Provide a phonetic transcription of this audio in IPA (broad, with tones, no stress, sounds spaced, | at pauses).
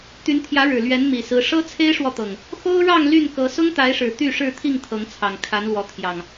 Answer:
t̪ y˨˦ n t̪ʰ j ä˨˦ ɻ ɻ̩˨˩ l ɥ ɛ˨˦ n m i˨˩ s ɹ̩˨˦ ʂ ɤ˦ t͡sʰ e˦ ɪ̯ ʂ w ɔ˨ t̪ ɤ˨˩ ŋ | x o˦ ʊ̯ ɻ ɑ˥˨ ŋ l y˥˨ n k ɤ˨˦ s ʊ˦ ŋ t̪ a˨˦ ɪ̯ ʂ ɻ̩˨˩ t̪ y˥˨ ʂ ɻ̩˥˨ t̪ʰ i˥˨ ŋ t̪ʰ ɤ˨˦ ŋ t͡sʰ ɑ˨˩ ŋ kʰ a˨˦ n l w ɔ˨˦ t̪ʰ j ɑ˨˩ ŋ